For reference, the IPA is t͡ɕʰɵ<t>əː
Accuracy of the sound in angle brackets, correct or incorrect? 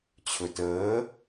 correct